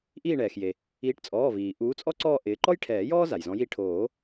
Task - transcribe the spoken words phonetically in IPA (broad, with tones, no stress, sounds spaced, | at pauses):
ʔ iː˦˨ ɳ ɛː˩ x j e˩ | iː˨˦ ʈ t͡sʼ ɔː˩˧˩ v iː˩ ʔ uː˨˦ t͡sʼ ɔ˥ ǀ ɔː˦˨ ʔ ɪː˨˦ ǃ ɔ˥ j ʈʰ ɛː˨˩˦ j ɔː˥ z a˩ j z ɔ̃˨˦ j i˦˨ ʈʰ oː˨˩˦